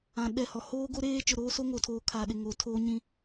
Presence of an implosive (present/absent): present